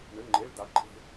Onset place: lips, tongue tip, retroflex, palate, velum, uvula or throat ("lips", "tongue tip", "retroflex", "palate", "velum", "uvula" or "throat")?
retroflex